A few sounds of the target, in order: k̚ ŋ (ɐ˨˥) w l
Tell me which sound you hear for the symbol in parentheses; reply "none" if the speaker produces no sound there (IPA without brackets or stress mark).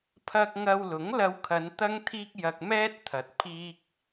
ɐ˨